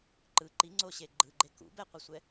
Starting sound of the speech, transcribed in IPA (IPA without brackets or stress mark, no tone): ǃ